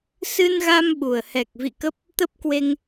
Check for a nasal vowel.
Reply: absent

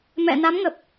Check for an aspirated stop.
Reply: absent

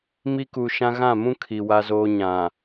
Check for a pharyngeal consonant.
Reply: absent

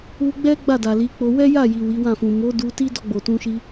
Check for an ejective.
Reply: absent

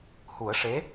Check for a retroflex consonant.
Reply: present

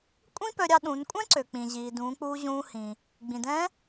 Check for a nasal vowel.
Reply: present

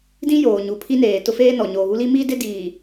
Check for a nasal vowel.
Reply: present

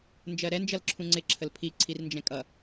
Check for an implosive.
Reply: absent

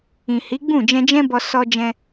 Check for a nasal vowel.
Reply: present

